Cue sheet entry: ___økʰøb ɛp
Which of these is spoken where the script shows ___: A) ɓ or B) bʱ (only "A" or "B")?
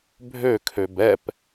B